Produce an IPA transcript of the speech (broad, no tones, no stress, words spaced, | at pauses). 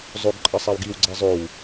zˤoɡǃʼʌsˤaw ɡiwɡ͡ǀɛ zˤow